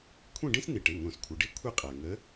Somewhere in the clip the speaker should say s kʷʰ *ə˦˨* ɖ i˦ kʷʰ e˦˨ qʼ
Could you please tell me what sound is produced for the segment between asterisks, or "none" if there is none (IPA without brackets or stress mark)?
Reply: ə˩˧˩